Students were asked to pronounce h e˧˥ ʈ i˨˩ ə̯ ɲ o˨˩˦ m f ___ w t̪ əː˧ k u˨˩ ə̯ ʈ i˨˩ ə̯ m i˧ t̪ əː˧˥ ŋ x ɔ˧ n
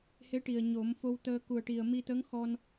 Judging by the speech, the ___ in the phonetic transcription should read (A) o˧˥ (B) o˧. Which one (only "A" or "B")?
B